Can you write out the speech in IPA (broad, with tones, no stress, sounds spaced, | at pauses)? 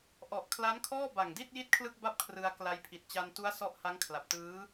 ʔ ɔ˨˩ ʔ kʰ l a˦˥ n kʰ ɔː˥˩ b a˨˩ ŋ d i˥˩ t̚ j i˥˩ t̚ kʰ l ɯ˥˩ k̚ b a˥˩ p̚ kʰ r ɯ˧ a̯ k l a˧ j pʰ i˨˩ t̚ t͡ɕ a˧ n t u˦˥ a̯ s ɔ˦˥ ʔ h a˦˥ ŋ kʰ l a˨˩ p̚ t ɯː˦˥